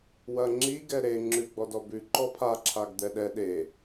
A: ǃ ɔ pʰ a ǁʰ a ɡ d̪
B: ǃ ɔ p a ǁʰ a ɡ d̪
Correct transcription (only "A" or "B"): A